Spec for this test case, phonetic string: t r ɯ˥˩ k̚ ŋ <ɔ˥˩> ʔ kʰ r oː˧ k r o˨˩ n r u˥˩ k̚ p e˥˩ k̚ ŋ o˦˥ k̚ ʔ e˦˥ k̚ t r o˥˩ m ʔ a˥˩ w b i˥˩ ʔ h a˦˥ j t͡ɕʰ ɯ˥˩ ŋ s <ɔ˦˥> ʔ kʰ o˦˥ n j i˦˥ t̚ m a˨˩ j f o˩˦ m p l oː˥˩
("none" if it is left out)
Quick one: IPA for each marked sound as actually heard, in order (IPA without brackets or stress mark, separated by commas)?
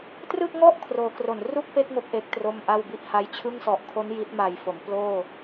ɔ˥˩, ɔ˨˩